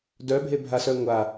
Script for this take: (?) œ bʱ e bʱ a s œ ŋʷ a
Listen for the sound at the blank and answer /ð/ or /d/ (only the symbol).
d